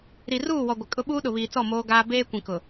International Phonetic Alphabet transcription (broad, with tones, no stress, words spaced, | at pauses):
ɾi˨ruː˦˨wɔ˨ ɡʷɪ˨kʼʊ˦ɓuː˦ ɗʊ˨βiː˨t͡sɔ˦˨ moː˦ɡaː˦ beː˦kʷĩ˨kʊ˨